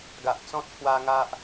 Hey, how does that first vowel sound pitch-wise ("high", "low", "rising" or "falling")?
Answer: low